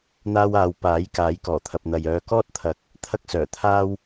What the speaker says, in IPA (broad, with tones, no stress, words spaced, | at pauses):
n̪aː˧waː˨w paː˨˥j kaː˨˥jkɔː˨˩t̪ʰɐ˨p̚n̪ɐ˨j œː˨˧kɔː˥t̚t̪ʰɐ˨˥k̚ | t̪ʰɐ˥k̚sœː˨˩ t̪ʰaː˥w